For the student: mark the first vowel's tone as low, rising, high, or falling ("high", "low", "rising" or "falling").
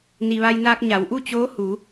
low